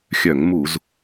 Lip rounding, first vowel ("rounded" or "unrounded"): rounded